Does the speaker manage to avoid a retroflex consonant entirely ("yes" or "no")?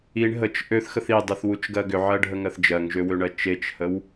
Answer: no